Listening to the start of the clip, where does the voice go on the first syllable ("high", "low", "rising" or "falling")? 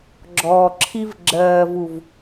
low